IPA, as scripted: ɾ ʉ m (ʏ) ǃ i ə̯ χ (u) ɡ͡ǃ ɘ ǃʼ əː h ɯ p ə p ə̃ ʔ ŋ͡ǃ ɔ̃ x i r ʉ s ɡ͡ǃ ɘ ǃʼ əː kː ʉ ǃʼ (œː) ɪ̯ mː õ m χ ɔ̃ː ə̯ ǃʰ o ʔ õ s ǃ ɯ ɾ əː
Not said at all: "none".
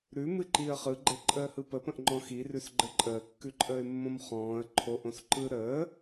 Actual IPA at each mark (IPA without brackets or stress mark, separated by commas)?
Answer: ɨ, ɯ, əː